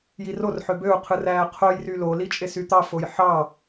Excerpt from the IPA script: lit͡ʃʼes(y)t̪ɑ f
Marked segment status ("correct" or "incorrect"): correct